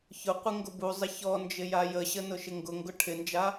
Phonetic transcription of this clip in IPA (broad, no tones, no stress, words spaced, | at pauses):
çʊqʷɪ ŋɡʊbuzˤɪ çɔ nd͡ʒɪjajəɕə nʊʃɪŋɡʊŋɡʊ ʈʰɪnd͡ʒa